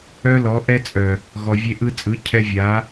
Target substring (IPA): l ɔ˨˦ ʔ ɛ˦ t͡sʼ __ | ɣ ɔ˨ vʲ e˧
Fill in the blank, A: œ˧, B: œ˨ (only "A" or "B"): B